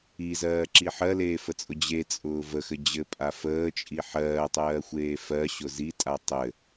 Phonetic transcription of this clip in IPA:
izɜːǁi ħɜleːfət͡sʼʊ d͡ʑet͡sʼʊː vəxɘ d͡ʑɘpʼa fəːt͡ʃʼi ħɜːtˤɜːxʷeː fɜɕʊ zitʼa tˤɘ

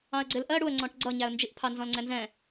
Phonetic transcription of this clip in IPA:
ɑ̃ə̯ɡ͡ǀɪlʔɜ ɽuə̯ŋ͡ǀɔ̃ʈ ɡ͡ǀʌɲæə̯nd͡ʒiʔpʰɑ nzɔ̃lŋ͡ǀɛnzɛ̃

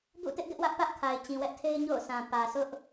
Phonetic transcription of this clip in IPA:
bṵ˦˨tɪ˦ʔ ɡɪ˦ʔwä˦ʔ pä˦ʔkʰa˨ɪ̯ t͡ɕĩ˨wɛ˦ʔtʰe˦ɪ̯ ɲo̰˦˨ʊ̯sʰã˨ pä˨sʰʊ˦ʔ

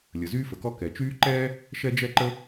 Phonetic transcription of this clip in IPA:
lʲə˩zyː˥fə˩kɔ˥ kɛ˩t͡ʃyː˥ ǃɛː˥ | ʃɛ˥d͡ʒɛ˥ǃə˥

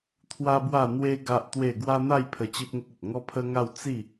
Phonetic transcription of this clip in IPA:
t̪ʰwa˦bwa˥˧n̪we˦ ɡa˦ʔt̪we˥˧ ɡwa˦n̪a˥˧jpʰə˧ t͡ɕi˦p̚ŋə˦k̚ə˨t̚ ŋɔ˦pʰə˦ŋa˥˧w t͡si˥˧

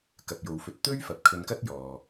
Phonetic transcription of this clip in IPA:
kɐ˨p̚jo˨wfɵ˧t̚ t̪ɵ˥ɥfɐ˨p̚kʰɵ˧nkɐ˥t̚ jɔː˨

